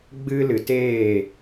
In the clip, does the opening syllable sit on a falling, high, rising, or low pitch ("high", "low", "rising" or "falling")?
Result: high